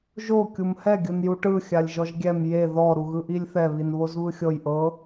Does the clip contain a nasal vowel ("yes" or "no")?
no